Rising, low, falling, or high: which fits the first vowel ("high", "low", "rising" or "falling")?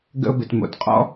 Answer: high